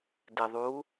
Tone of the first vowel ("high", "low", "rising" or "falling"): low